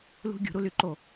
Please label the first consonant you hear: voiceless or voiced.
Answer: voiced